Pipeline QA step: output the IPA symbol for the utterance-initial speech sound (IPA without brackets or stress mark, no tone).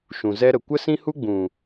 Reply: ʃ